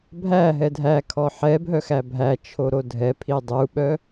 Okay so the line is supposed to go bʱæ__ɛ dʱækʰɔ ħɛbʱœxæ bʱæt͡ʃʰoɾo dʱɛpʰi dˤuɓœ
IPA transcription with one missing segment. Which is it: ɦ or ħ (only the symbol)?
ɦ